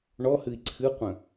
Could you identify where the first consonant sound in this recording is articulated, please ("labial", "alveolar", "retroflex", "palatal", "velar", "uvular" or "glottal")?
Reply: retroflex